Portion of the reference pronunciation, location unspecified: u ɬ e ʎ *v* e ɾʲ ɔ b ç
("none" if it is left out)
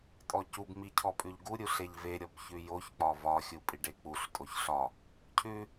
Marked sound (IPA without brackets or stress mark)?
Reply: v